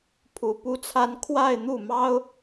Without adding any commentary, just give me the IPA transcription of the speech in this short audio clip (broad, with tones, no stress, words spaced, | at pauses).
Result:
pʰu˨˩pu˥t͡sʰa˥n kʰwa˥˧ɪ̯n̪u˥˩ mɑ˥ʊ̯